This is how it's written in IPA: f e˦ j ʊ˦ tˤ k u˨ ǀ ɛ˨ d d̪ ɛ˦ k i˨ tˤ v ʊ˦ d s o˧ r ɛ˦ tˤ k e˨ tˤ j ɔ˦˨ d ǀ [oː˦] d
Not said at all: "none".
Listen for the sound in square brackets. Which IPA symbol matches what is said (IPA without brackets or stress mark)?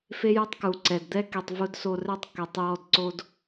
o˦